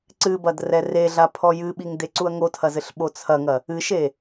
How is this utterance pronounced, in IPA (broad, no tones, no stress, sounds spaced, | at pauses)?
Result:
ǀ ɨ b ɐ d r ɛ r e ɮ a pʰ ɔ j ɨ ɓ i ŋ d e ǀ u ɐ̯ ŋ o tʰ ɐ z ɘ ɬ ɓ o t͡sʰ ɐ ŋ ɐ | ɨ ʃ e